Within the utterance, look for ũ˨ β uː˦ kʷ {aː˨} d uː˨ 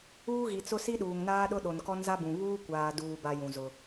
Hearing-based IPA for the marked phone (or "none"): aː˨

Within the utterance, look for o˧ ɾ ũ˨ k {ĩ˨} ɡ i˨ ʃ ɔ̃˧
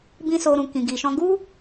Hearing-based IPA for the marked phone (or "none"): ĩ˨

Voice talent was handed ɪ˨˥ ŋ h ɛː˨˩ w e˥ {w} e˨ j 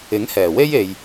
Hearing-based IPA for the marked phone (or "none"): j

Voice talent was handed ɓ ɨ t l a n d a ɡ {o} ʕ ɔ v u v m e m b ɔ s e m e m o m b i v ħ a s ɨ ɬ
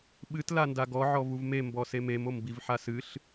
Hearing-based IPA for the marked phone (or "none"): ɔ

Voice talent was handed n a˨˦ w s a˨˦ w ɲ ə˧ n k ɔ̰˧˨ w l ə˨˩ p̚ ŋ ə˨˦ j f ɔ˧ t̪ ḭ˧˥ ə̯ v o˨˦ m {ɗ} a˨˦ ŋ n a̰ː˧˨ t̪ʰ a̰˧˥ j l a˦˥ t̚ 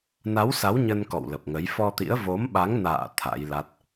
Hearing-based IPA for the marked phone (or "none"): ɓ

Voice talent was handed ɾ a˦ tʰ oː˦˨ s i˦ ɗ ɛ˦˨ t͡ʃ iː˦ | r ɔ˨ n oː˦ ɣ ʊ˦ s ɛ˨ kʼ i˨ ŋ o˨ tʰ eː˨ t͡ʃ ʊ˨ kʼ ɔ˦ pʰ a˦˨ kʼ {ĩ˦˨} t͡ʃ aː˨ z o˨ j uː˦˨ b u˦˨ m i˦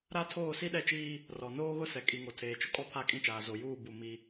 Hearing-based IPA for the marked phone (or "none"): ĩ˦˨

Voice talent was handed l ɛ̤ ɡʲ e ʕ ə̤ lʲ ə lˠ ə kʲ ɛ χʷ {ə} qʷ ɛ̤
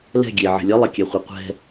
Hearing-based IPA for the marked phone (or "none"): ə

